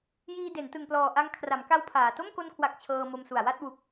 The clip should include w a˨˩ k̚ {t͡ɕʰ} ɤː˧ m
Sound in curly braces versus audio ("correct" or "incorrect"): correct